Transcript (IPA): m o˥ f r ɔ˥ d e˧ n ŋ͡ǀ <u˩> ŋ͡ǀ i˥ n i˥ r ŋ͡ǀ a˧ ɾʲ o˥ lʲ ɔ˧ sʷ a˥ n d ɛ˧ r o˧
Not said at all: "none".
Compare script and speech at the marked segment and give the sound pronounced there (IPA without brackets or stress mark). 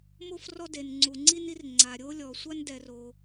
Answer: u˧